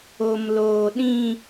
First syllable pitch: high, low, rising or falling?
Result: low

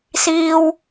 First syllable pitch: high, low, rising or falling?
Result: high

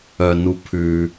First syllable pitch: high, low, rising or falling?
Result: low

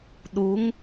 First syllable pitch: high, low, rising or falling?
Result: rising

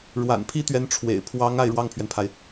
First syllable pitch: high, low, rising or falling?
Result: low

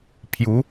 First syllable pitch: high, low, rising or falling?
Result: rising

